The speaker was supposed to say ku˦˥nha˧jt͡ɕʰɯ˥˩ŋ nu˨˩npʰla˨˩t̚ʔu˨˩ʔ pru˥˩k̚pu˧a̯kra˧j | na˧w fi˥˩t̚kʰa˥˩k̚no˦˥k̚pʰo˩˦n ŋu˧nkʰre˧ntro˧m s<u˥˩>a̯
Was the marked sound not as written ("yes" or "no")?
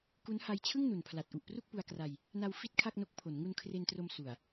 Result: yes